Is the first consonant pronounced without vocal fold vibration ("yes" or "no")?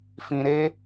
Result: yes